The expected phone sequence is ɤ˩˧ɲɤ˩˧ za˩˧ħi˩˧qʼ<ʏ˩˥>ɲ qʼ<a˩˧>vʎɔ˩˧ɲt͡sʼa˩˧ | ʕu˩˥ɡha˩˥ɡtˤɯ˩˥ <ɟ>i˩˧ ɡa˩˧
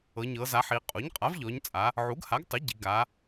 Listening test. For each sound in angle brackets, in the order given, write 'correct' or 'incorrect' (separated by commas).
incorrect, incorrect, correct